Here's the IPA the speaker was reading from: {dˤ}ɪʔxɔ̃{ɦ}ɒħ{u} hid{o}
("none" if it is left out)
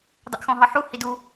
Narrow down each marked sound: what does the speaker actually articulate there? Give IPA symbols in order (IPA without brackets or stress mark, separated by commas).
dˤ, ɦ, u, u